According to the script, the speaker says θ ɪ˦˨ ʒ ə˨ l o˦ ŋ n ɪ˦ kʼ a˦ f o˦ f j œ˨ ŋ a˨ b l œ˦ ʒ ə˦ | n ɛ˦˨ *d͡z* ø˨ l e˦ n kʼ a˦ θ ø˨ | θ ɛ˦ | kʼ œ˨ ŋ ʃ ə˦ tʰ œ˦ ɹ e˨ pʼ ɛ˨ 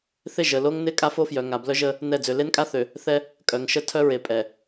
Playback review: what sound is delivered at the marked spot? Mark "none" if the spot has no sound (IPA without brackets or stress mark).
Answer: d͡z